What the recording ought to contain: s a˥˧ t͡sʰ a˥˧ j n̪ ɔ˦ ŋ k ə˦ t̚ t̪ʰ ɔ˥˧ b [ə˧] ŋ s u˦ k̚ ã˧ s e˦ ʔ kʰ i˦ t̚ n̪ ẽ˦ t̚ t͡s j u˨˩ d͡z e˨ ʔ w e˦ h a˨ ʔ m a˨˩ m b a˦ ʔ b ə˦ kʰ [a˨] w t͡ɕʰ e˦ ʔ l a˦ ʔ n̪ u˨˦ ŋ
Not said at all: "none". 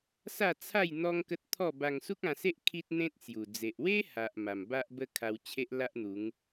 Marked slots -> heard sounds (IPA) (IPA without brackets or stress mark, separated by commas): a˧, a˧